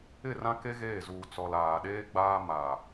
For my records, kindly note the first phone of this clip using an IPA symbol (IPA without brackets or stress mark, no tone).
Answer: ɪ